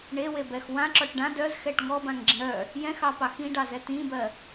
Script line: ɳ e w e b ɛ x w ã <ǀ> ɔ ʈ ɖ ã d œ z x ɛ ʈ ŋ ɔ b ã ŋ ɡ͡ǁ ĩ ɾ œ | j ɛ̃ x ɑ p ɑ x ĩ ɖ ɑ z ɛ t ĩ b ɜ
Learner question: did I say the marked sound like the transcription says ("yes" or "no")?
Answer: no